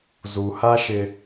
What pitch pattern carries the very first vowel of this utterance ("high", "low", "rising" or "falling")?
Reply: low